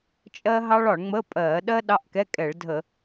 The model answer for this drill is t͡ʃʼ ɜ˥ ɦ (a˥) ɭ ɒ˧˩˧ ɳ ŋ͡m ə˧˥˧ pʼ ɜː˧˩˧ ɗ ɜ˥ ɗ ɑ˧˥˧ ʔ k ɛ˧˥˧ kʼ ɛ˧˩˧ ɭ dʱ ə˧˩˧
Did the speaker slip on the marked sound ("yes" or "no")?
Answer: yes